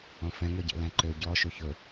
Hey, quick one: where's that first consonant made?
lips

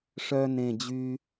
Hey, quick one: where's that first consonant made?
retroflex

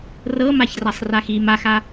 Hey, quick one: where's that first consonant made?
tongue tip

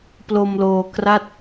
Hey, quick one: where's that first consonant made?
lips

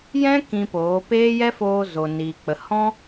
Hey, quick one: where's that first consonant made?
palate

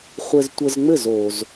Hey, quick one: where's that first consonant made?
uvula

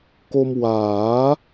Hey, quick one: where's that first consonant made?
velum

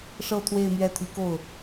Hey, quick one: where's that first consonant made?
retroflex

